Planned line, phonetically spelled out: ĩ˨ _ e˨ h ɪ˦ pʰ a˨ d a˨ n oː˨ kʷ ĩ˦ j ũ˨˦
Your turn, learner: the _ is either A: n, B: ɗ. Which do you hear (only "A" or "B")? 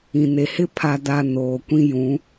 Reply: A